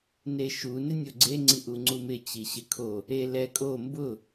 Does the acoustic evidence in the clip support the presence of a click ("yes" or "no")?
yes